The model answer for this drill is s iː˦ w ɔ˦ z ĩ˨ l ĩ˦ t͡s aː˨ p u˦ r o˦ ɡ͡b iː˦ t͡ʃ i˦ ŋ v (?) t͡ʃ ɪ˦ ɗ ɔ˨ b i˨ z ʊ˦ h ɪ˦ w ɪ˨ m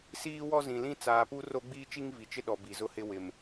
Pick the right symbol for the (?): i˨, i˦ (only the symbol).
i˨